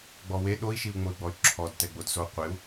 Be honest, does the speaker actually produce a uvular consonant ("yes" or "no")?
yes